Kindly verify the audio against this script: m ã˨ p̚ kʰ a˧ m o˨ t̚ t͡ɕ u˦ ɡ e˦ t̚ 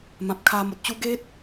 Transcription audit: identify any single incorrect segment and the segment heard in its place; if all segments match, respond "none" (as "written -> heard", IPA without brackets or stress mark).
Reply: none